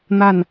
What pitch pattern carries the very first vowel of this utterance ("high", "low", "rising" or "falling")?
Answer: falling